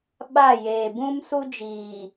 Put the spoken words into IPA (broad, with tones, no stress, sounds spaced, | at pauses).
ɓ a˦˨ j eː˨ b ũ˦ m s u˦ d͡ʒ iː˨